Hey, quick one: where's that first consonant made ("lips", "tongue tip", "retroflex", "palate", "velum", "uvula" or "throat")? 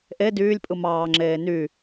throat